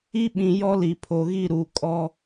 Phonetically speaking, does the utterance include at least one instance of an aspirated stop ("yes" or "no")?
yes